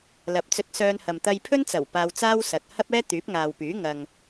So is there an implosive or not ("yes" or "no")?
no